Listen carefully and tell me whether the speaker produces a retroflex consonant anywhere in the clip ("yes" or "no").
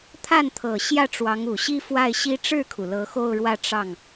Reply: yes